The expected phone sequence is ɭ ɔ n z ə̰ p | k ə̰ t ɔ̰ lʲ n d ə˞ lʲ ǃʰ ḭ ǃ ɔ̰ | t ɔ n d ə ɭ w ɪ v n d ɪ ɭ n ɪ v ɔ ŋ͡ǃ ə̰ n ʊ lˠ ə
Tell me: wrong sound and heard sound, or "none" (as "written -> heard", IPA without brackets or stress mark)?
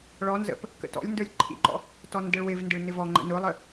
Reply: none